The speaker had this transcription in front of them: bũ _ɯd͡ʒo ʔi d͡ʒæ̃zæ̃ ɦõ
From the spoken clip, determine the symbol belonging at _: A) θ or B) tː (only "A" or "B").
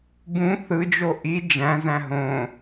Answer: A